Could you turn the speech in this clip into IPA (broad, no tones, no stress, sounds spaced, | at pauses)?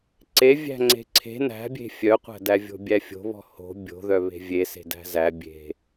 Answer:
ǀ e vʲ æ̤ ŋ͡ǀ e̤ ǀʰ e̤ n æ̤ bʲ e̤ fʲ œ qʷ æ̤ d æ vʲ o̤ bʲ æ fʲ o̤ β ɔ̤ h o̤ bʲ o̤ ð œ β e̤ vʲ e s e̤ d æ̤ z æ bʲ e̤